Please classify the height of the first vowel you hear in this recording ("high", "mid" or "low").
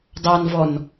low